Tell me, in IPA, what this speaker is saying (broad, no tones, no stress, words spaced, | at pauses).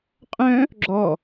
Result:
qʼœ̃ | ɡ͡ǁɔ